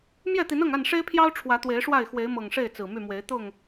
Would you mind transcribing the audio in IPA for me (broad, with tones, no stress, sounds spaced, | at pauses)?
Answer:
m j ɛ˥˨ t̪ i˨˦ n ɤ˥˨ ŋ a˥˨ n ʂ e˦ ɪ̯ pʰ j ɑ˦ ʊ̯ ʈ͡ʂʰ w ä˨˦ t̪ w e˨˦ ɪ̯ ʂ w a˥˨ ɪ̯ x w e˨˦ ɪ̯ m ɤ˨˩ ŋ ʂ e˥˨ ɪ̯ t͡s ɹ̩˨˩ m y˥˨ m w e˨˦ ɪ̯ t̪ ʊ˥˨ ŋ